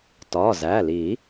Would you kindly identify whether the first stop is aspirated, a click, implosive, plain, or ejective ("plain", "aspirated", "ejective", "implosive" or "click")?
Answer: plain